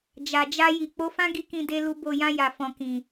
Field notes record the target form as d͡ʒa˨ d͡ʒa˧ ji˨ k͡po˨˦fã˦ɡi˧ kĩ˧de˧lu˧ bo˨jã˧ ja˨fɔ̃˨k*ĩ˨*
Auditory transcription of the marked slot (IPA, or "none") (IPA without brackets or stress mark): ĩ˨